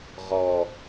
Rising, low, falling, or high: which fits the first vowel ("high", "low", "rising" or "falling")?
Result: low